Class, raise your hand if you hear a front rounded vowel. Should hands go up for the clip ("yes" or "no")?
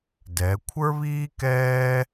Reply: no